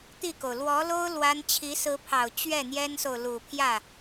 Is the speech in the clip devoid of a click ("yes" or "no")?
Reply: yes